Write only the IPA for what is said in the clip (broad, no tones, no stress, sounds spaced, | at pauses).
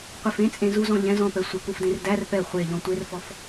qʷ e f ẽ t͡sʼ ẽ z u z ɔ̃ ʎ ɛ̃ z ɔ̃ p ɛ sʷ ə k u f d ẽ r d æ r p ɛ χʷ e ʎ ɔ̃ tʷ e r f ɔ f